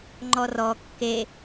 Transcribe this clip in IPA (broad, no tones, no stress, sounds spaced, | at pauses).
ŋ͡ǃ ɔ r ɔ kː e